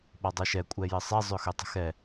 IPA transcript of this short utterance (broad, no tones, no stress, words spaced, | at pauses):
ɓɔdˤɤʃɛ kʷʼɛjɘsˤɛ zˤøxøtˤə̤xɛ